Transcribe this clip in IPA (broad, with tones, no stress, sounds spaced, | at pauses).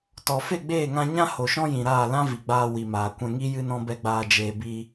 t ɔ˨ f e˦˨ ɡ͡b eː˦˨ ŋ ã˧ ɲ ã˦ h o˨ ʃ ɔ̃˦ j ĩ˨ ɾ aː˦˨ l ã˦ v i˨ ɡ͡b aː˧ w i˨ m aː˨ kʷ ɛ̃˧ ŋ i˦ j ɨ˦ n ɔ̃˦ b ɛ˦ ɡ͡b aː˧ d͡ʒ eː˨ b i˧